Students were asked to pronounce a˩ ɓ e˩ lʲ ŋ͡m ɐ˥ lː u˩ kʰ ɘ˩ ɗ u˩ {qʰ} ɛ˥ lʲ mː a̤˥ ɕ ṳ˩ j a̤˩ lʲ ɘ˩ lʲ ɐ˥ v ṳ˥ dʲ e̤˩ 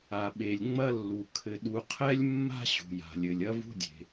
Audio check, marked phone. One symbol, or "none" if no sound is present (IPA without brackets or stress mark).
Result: qʰ